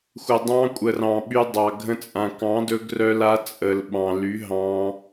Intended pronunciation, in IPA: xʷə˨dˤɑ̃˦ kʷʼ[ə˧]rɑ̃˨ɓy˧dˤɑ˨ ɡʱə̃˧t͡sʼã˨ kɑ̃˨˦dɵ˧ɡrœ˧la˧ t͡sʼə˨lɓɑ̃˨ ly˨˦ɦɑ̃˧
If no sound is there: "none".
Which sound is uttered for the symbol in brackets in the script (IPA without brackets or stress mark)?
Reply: ə˨